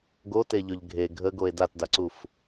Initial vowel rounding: rounded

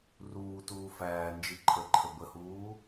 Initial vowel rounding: rounded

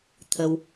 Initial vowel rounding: unrounded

